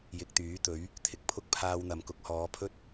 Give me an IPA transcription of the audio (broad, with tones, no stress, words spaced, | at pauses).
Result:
jɪ˨k̚t̪yː˨˥t̪ɵ˨˥ɥ | t̪ʰɪ˨k̚pʰʊ˥k̚ pʰaː˧wn̪ɐ˨m kʊ˨˥k̚hɔː˨˧pʰɵ˥t̚